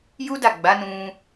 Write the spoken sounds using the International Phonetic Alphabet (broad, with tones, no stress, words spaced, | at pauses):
ju˦da˦˨ɡ͡ba˨˦nũ˧